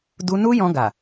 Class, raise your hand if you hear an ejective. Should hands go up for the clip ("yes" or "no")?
no